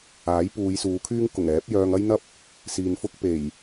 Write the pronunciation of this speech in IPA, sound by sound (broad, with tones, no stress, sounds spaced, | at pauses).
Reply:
aː˨˥ j p uː˨˧ j s uː˨˧ kʰ yː˥ ŋ k ʊ˨˩ ŋ ɛː˨˥ p̚ j œː˧ ŋ ɐ˥ j n̪ ɐ˥ p̚ | s iː˨ n f ʊ˥ k̚ p e˨˩ j